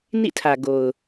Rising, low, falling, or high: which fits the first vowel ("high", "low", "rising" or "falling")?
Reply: falling